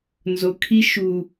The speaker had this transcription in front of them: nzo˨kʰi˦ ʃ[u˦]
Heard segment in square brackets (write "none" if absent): u˦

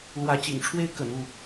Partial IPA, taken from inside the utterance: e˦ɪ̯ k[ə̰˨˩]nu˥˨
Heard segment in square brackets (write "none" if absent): ə̰˨˩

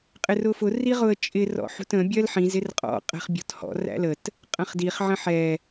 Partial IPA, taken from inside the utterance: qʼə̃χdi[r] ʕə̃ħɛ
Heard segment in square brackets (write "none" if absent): χ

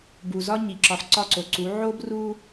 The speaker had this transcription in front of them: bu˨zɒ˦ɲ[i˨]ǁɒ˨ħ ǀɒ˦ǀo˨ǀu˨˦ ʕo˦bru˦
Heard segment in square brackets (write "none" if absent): i˨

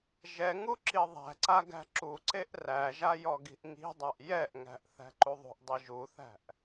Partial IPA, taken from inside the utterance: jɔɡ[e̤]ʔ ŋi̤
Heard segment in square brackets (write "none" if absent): i̤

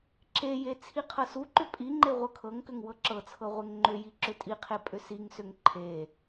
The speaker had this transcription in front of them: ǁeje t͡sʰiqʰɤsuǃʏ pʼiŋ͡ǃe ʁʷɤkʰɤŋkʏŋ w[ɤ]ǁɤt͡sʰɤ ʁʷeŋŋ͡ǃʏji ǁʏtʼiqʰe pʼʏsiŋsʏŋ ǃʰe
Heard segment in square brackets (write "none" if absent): ɤ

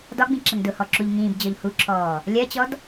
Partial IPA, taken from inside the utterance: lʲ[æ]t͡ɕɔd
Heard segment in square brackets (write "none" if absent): ɜ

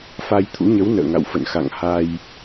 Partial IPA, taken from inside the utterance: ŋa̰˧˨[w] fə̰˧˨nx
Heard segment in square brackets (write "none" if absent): w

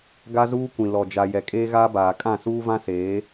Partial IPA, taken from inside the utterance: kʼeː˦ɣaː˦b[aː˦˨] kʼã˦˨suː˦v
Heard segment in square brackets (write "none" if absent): aː˨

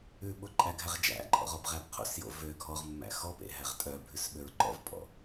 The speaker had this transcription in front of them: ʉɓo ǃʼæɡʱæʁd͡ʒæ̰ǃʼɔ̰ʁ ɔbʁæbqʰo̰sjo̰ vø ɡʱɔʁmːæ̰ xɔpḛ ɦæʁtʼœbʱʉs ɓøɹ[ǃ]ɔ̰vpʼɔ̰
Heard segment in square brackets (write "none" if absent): ǃ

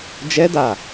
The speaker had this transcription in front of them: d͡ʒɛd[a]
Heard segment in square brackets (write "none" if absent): a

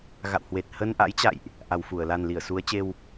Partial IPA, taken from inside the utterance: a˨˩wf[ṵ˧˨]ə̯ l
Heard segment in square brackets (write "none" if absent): u˧˩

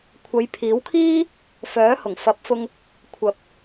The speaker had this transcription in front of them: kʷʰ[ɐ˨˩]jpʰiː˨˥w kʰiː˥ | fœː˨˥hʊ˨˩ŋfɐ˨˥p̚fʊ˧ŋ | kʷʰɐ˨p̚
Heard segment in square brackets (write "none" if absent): ɐ˨˧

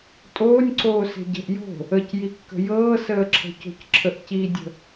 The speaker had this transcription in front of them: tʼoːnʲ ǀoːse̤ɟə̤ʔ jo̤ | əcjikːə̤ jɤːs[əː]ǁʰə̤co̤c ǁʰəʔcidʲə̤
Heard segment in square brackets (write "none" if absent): əː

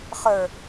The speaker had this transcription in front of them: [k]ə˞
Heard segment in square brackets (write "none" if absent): χ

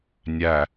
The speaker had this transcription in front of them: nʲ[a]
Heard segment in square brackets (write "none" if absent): æ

